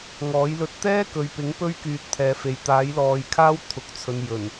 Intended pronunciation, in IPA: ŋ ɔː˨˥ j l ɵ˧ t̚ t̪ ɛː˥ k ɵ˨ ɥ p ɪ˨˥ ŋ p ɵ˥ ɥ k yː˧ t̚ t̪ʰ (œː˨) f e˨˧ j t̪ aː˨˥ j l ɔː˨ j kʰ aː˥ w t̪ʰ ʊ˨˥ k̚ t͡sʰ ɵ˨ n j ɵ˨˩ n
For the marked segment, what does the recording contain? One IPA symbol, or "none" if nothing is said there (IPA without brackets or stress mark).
ɛː˨